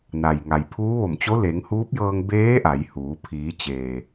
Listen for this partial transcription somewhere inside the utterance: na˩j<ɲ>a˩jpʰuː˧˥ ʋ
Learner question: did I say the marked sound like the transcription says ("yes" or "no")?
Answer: no